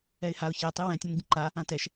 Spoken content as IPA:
ɛ ɪ̯ h a ʊ̯ ç ɛ tˤ i w ɛ̃ tʲ ɔ̃ n ɟ ə̃ ǃ a | ã t ɛ ʃ

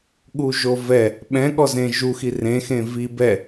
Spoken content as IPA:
ɠ u ʒ o v ɛ | ɓ ɛ̃ ɠ ɔ z ẽ ʒ u x i r ẽ x ẽ v i b ɛ

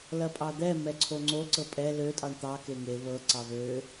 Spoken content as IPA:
l ɐ pʼ ɑ d̪ ɛ m ɛ ǀʰ o ŋ͡ǀ o ǀ ɤ pʼ ɛ l ø tʼ ɑ ɳ t̪ ɑ k e ŋ e β ɤ ǀ ɑ β ø

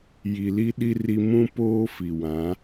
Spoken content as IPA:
j i˨ l i˦ ɗ i˦ r i˦ m ũ˦ p oː˦ f i˨ w ã˨˦

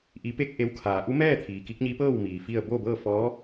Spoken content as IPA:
ʔ i˩˧ p e˧ k̚ ʔ e˧˥ w kʰ aː˩˧ ʔ u˧˥ m ɛː˥˨ t̪ʰ iː˩ k i˧˥ k̚ ɲ i˧˥ p ɤː˥˨ w m iː˩ f i˥˨ ə̯ b o˥˨ b ɤː˥˨ f ɔː˧˥

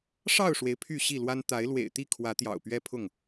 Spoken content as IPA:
ʂ ɑ˥˨ ʊ̯ ʂ w e˩ ɪ̯ pʰ y˥˨ ɕ i˥˨ l w a˦ n t̪ a˨˦ ɪ̯ l w ḛ˨˩ ɪ̯ t̪ i˥˨ kʰ w ä˨˦ t̪ j ɑ̰˨˩ ʊ̯ p ɥ ɛ˦ pʰ ʊ˥˨ ŋ

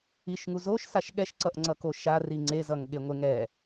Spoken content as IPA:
i ʃ ŋ u z o ʃ s a ʃ ɠ ɛ ʃ ǀ ʌ ʔ ŋ͡ǀ ʌ k o ʃ a r i ŋ͡ǀ e z ʌ ŋ ɠ e ŋʷ e ŋ ɛ

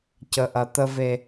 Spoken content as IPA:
c ə˦ ʔ ɐ˦ t̪ ə˦ v e˦

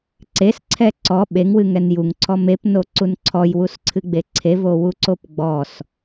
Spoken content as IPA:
ǀ e s ǀʰ ɛ ǀ ɔ ɓ e ŋ w ɨ ŋ ɛ n j u ŋ ǀʰ ɔ m e p n o ǀ u n ǀʰ ɔ j w u s ǀʰ ɨ ɡ͡b e ǀʰ e v o w u ǀ o p ɡ͡b ɔ s

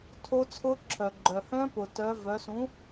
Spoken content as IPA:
tʰ o˦˥ t͡sʰ ʊ˦˥ ǁʰ œ˩ ɡ͡ǃ œ˩ h œ̃˦˥ p ʊ˩ t œ˩˧ v œ˩˧ s ũ˩˥

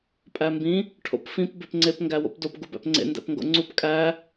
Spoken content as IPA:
pʼ æ m b ĩ | ʈʰ o̰ p f ĩ p b e p ŋ͡ǀ e p ŋ ɡ æ w o̰ p d o p ɡ u b æ̰ p ŋ͡ǀ ḛ n d æ̰ p ŋ ɡ o̰ ŋ͡ǀ u p kʼ æ

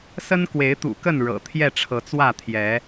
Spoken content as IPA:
s ə˦ n k w e˨˦ ɪ̯ t̪ ṵ˨˩ k ə˥˨ n ɻ ɤ̰˨˩ t̪ʰ j ɛ˥˨ ʈ͡ʂʰ ɤ˨˦ t͡s w ä˥˨ t̪ʰ j ɛ˨˦

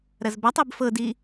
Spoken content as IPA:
ɾ ɐ z b a tˤ i b f ɤ d i

